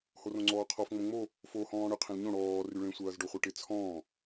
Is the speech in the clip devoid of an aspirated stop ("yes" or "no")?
no